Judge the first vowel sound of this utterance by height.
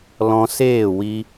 mid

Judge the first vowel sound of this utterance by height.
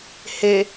mid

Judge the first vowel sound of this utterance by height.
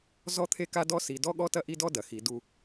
mid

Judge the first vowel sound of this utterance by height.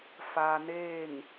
low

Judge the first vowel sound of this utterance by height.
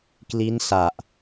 high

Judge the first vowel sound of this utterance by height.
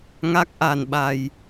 low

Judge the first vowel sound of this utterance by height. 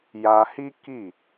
low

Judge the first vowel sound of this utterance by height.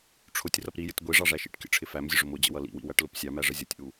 high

